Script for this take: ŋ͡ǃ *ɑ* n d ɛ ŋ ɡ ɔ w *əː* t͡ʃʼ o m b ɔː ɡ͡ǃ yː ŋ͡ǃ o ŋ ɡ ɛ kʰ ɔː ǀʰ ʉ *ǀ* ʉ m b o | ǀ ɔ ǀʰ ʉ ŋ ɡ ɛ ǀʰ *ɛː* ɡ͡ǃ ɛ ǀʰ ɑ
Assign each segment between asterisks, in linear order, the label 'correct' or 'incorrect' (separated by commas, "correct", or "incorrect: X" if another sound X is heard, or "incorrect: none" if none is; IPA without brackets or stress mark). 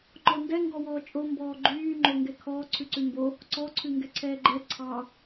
incorrect: ɔ, incorrect: ɔː, correct, correct